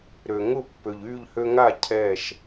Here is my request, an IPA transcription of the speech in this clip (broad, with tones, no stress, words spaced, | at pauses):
ɾø˩ ŋʊ˥˩ pːø˩ʎyː˥˩ʎhø˧ŋaː˥˩ cʰɛː˥˩ʃ